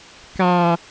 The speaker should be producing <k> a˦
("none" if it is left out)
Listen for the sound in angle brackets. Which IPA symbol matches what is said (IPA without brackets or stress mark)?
k